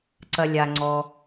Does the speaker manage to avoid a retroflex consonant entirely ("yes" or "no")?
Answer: yes